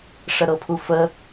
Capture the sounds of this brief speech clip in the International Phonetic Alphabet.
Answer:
ʂəɾɤpʰufə

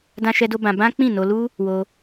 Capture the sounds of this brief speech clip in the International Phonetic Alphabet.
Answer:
dã˦ʃɛ˦do˦bã˧ bã˦ k͡pĩ˦˨no˧ lu˦ | wo˧

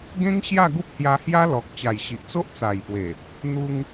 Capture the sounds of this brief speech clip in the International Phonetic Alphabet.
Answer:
ɡẽ˦ŋ ɕja˥˧ɡu˦p̚hja˧hja˦ lɔ˨k̚ t͡ɕa˨˩jɕi˨ʔ t͡so˦ʔt͡sa˨˩jpwe˨˩ | n̪u˧ŋ

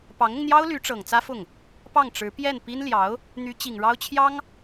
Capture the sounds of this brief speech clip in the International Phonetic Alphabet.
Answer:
pɑ˧˥ŋʊ˧ŋn̪jɑ˥ʊ̯ ly˧˥ʈ͡ʂɤ˨˩ŋ t͡sä˥fʊ˥˩ŋ | pɑ˥˩ŋʈ͡ʂɻ̩˧˥pjɛ˥˩n pi˥n ljɑ˧˥ʊ̯ | n̪y˧˥ t͡ɕi˨˩ŋ ɻɑ˥ʊ̯t͡ɕʰjɑ˥ŋ

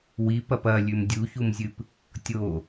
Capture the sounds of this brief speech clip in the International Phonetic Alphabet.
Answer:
wip ɐpɐlʲʉm dʲuçumzʲɨp | tʲo

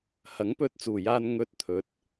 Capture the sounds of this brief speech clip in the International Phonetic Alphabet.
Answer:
hɐ˨˥ŋpɵ˧t̚ t͡suː˨˩jaː˧n ŋɵ˧t̚t̪ʰɵ˨˥t̚

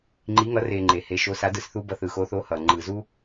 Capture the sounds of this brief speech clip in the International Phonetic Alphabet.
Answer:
ŋ͡ǃi˩˧ŋʌ˩˧ re˩ ŋ͡ǃe˩he˩˧ ʃo˩˧sa˩˧dɯ˩s θu˧ bʌ˩˧θɯ˩xo˩˧θo˩˧ hʌ˩ ŋ͡ǃɯ˩zu˧

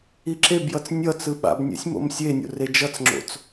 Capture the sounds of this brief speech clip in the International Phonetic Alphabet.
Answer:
iǁebjʌt͡s nʲʌt͡sɯ ɓa̰bnʲɛ̰sʲ mo̰msʲenʲo̰ red͡ʒʌt͡sŋ͡ǁo̰t͡s

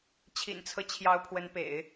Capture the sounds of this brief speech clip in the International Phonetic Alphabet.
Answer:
t͡ɕʰḭ˨˩nt͡sʰɤ˦t͡ɕʰjɑ˧˥ʊ̯ pʰwə˧˥npḛ˨˩˦ɪ̯

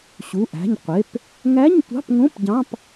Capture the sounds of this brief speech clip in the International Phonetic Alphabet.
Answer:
ɕu˩˧˩ʔæ̤˩˧˩ɲqʷe˩˧˩p | ŋæ˧˥˧ɲtʷɑ̤˧˥˧pŋõ˧˥˧p ɟɑ̃˧˥˧p

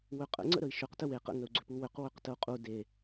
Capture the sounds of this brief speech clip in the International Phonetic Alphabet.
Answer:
wʏqʼə̰ ŋ͡ǀə̰ɾəi̯ʃʏq təwe qə̰ ŋəu̯ɡ͡ǀʏpuwʏq wʏqtəu̯qʼu de

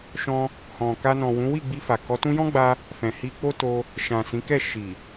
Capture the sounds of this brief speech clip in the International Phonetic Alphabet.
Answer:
ʃɔ̃˧ | hɔ̃˨ka˧nɔ̃˨ wũ˨˦wi˦˨ɡ͡bi˧fa˨ kɔ˨˦tũ˦ jɔ̃˦ɡ͡ba˧ | fɛ̃˨hi˧k͡po˦ to˧ | ʃã˨ sĩ˨˦kɛ˦˨ ʃi˨

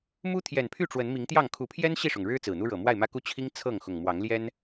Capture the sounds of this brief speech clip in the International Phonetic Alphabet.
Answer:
mu˦t̪ʰjɛ˨˩npʰy˥˨ ʈ͡ʂwə˨˦nmi˨˦ŋt̪jɑ˥˨ŋ kʰu˨˦pʰjɛ˦n ɕi˥˨ʂʊ˩ŋɻɻ̩˦ t͡sɹ̩˨˩n̪u˦ɻɤ˨˩ mwa˥˨ɪ̯mä˦ku˦ t͡ɕʰi˦ŋ t͡sʰɤ˥˨ŋxʊ˨˩ŋ mwɑ˨˦ŋljɛ˦n

